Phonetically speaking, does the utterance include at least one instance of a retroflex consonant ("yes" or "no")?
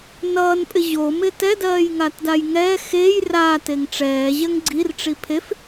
yes